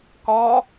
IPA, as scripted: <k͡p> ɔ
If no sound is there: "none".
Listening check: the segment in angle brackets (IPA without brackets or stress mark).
k